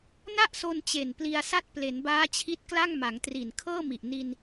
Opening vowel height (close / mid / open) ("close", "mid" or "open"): open